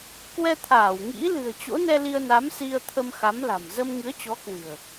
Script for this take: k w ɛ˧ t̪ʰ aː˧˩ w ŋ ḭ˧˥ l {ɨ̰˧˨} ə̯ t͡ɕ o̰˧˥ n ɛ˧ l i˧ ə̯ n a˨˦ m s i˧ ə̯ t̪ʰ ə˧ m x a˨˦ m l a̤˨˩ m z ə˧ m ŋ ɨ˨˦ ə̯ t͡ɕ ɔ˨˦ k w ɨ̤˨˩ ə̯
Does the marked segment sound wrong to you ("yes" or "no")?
yes